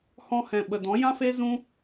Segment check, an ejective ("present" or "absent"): absent